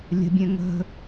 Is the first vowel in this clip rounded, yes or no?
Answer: no